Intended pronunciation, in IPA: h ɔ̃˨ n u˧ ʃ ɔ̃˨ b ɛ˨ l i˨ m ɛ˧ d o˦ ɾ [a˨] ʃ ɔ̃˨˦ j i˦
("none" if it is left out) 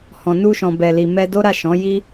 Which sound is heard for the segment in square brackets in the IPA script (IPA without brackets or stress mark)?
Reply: a˦˨